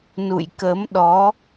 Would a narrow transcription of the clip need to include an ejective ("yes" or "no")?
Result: no